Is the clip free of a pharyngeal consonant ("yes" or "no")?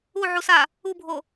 no